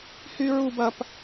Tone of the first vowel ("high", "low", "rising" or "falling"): high